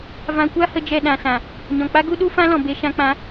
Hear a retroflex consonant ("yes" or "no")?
no